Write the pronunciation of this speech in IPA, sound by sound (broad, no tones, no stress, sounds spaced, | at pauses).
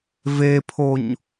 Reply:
v e pʰ o ɲ